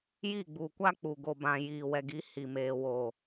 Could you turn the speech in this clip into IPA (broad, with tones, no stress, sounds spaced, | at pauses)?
j i˦˨ ɡ͡b u˨ kʷ a˦ k͡p u˨ ɡ o˨ b ã˨ j iː˨ w ɛ˨ ɡ i˨˦ h i˨ m eː˨ w oː˨